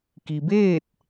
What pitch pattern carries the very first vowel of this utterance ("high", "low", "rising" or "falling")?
low